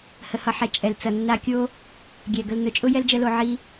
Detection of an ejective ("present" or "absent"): present